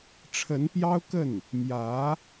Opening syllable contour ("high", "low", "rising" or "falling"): rising